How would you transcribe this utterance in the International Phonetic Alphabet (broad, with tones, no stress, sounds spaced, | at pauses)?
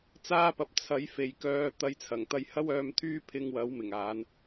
t͡s aː˥ p ɐ˨˥ p̚ t͡sʰ ɐ˨˥ j f e˨ j k œː˧ t̪ ɐ˧ j t͡sʰ ɐ˨˩ ŋ t̪ ɐ˧ j h ɐ˥ w œː˧ m t̪ʰ yː˥ pʰ ɪ˧ ŋ w ɐ˨˥ w m ɪ˨˩ ŋ aː˨˥ n